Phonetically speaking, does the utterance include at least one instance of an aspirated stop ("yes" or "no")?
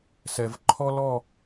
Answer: yes